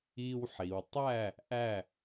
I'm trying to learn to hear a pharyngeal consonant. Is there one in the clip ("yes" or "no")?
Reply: yes